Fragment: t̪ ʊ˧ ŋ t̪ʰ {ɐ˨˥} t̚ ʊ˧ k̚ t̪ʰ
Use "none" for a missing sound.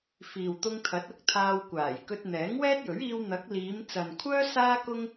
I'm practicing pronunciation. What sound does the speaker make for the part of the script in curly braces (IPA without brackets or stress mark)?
ɐ˨˥